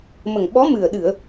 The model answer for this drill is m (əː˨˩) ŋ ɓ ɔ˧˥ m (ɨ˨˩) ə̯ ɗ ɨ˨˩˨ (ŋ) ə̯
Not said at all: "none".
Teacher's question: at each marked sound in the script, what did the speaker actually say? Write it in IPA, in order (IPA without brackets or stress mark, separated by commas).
ə˨˩, ɨ˨˩, none